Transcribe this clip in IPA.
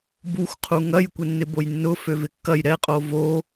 b u xʷ qʰ u ŋ ɐ j kʷ ɪ nː ɪ b o j nː ʊ f ø v ɪ kː ɐ j ɾ ɛ qʼ o v o

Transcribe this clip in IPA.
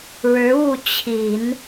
ɻ ɻ̩˧˥ u˥˩ t͡ɕʰ i˨˩˦ n

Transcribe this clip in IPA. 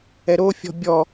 ɛ ɾ o fʲ ɔ̤ bʲ ɔ

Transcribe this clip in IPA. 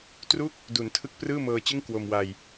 t r u˥˩ k̚ | d u˩˦ n tʰ ɯ˦˥ k̚ p r ɯː˥˩ m ɤː˧ t͡ɕ ɯ˥˩ ŋ k w o˧ m w a˧ j

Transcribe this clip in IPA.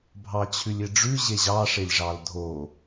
bʱ ɑ t͡ɕʰ ʉ lʲ e ɖ͡ʐ ʉ ʑ e ʑ ɑ ʂ e lʲ ʐ ɑ l dʱ o

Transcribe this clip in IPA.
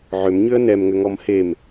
ʕ ʏ m ɲ ʏ ə̯ n ɛ m ŋ ʏ ŋ ɔ m h e m

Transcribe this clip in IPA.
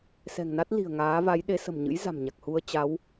s ɛ̤˨˩ ŋ n a˦˥ t̚ l i̤˨˩ ə̯ ŋ aː˨˦ v a˨˦ j ɗ e˨˦ s ə̤˨˩ m ɲ ɨ̰˧˥ j z a̤˨˩ m ɲ a˨˩ k̚ h u˧ ə̯ t͡ɕ a˨˦ w

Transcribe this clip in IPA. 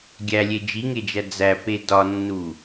ɡʲ æ lʲ e d͡ʒ i ŋ e d͡ʒ æ d͡z æ p e d ɒ nː u

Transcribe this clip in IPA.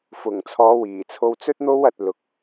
f ʊ˨˩ ŋ t͡sʰ ɔː˨˧ w iː˨˩ t͡sʰ o˧ w t͡s ɵ˥ t̚ n̪ o˥ w ɐ˧ t̚ l ʊ˨˥ k̚

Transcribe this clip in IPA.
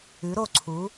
ʉ˩˥ ɾ o˥˩ ǀʰ u˩˥

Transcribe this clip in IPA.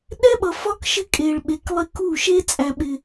ɗ ɛ˦ ɓ ʌ˨ f ɒ˦ k ʃ ɪ˦ kʼ e˨ ɭ ɓ e˨ k lˠ ɪ˦ k u˦˨ ʃ e˦ t͡sʼ æ˨ ɓ ɪ˨

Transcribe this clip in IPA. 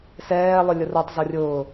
s ɛː lˠ ø lʲ ʊ r o tˤ z ɔ rʲ ʊː

